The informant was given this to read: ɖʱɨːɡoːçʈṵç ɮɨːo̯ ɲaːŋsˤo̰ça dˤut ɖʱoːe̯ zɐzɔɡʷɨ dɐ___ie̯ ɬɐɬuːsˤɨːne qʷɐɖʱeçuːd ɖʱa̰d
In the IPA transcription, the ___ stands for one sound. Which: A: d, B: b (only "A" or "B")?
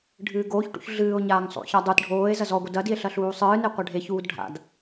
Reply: A